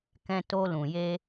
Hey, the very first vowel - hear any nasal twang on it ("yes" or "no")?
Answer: yes